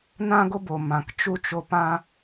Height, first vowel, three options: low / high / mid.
low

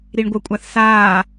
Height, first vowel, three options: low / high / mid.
high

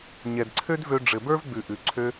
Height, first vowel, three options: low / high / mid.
mid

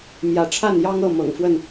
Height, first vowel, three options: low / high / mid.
low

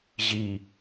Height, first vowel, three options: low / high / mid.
high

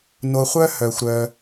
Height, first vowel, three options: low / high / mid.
mid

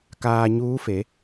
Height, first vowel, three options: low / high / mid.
low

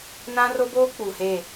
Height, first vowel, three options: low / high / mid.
low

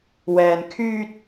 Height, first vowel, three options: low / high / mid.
mid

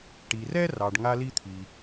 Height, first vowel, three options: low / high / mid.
high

